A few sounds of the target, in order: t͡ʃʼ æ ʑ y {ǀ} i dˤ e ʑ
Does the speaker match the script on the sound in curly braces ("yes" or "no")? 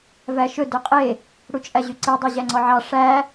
yes